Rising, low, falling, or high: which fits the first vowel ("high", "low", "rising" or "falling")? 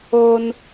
high